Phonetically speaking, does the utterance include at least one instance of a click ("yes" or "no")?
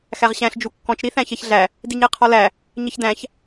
no